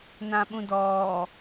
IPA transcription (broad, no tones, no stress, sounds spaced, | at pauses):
n ã ɓ ũ d ɔː